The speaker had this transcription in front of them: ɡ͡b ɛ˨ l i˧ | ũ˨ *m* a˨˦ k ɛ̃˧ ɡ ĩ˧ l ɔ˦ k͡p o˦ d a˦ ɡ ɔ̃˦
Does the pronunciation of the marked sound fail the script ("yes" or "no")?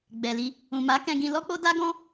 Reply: no